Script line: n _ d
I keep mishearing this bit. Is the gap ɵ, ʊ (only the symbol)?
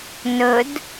ɵ